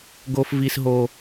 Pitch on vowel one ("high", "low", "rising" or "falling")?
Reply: high